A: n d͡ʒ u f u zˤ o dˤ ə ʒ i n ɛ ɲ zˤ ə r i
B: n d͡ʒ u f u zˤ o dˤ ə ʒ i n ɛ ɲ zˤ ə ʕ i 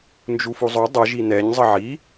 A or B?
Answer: B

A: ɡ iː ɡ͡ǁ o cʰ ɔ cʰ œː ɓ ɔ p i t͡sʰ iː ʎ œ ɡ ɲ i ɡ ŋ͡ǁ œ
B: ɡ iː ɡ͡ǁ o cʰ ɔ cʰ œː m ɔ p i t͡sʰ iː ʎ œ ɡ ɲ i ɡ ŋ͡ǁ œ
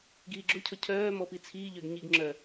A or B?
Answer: B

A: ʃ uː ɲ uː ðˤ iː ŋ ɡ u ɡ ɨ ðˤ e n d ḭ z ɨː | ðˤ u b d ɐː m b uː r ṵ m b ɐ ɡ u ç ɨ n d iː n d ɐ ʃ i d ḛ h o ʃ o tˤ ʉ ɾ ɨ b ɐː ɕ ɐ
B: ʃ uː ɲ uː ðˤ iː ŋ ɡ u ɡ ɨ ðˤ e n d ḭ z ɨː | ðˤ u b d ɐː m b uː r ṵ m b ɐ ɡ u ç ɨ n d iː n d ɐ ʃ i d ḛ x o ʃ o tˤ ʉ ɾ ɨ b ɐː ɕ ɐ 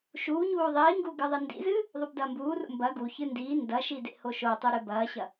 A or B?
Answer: A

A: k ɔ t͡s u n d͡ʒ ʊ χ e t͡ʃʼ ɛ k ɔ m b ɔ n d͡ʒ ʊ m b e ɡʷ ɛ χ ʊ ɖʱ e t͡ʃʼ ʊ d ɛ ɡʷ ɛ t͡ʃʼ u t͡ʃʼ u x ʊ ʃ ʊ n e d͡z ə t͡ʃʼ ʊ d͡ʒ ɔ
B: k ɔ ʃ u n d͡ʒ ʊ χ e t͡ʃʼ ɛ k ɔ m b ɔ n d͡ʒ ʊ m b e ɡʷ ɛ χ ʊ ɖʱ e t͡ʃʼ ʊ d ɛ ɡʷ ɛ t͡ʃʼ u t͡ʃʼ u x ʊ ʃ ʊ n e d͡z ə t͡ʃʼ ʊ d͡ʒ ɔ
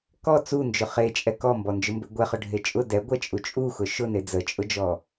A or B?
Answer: A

